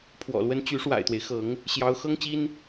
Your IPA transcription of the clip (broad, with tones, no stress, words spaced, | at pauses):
pʰwɔ̰˨˩lwə˥n t͡ɕy˧˥ʂwa̰˨˩ɪ̯t̪we˦ɪ̯xɤ˧˥ŋ | ɕjɑ˧˥ʊ̯ xɤ˥ŋt͡ɕi˥n